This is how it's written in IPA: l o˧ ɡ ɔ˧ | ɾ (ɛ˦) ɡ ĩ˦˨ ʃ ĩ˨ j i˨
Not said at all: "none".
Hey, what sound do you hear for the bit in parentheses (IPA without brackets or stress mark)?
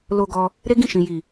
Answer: e˦